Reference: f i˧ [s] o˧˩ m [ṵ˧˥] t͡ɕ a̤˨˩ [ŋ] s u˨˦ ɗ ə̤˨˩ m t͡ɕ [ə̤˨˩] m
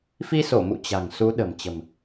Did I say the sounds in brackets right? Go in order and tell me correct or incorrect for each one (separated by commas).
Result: correct, incorrect, correct, correct